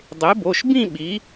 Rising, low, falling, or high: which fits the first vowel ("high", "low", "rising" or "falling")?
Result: rising